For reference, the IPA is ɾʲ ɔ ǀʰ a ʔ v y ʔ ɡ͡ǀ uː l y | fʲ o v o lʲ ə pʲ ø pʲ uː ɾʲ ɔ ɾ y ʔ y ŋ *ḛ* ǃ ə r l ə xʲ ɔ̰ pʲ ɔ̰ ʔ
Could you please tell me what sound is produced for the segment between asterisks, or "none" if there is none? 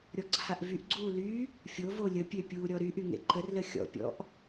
ḛ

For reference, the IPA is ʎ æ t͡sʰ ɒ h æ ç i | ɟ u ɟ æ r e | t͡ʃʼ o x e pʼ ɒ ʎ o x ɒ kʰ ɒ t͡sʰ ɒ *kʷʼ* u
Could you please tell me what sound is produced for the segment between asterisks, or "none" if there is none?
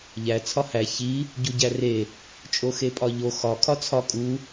kʼ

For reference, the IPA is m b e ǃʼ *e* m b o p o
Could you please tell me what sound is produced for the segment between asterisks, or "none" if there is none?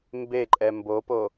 ɛ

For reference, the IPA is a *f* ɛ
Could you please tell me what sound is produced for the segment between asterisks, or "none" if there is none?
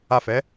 f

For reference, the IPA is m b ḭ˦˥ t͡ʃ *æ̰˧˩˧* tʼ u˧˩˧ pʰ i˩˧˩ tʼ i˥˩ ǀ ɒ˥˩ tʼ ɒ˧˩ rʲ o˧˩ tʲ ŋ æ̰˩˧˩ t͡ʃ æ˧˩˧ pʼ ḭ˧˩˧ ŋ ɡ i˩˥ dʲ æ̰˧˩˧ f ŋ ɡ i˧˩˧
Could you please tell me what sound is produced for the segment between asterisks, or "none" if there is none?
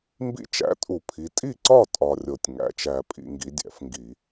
æ̰˩˥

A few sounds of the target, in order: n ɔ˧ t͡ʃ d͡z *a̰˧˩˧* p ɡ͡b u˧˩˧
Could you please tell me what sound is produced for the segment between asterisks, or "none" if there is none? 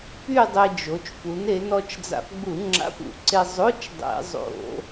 a̰˧˩˧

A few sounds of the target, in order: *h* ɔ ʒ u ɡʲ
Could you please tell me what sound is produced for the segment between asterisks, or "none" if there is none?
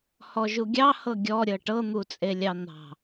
h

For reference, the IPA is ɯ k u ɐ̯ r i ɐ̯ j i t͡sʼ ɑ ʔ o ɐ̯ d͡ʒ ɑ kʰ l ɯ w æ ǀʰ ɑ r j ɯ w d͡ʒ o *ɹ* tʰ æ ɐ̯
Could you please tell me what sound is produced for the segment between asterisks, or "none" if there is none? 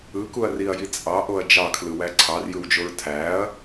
ɹ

